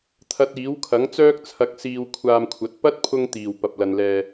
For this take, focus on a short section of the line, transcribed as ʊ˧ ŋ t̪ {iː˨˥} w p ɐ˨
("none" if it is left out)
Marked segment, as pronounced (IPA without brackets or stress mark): iː˨˩